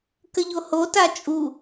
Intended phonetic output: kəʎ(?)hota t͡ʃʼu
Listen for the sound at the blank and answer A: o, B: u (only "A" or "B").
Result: A